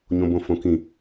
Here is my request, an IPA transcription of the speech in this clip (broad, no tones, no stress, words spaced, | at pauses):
ɲõbõfõkĩ